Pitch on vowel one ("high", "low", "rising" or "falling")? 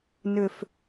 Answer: falling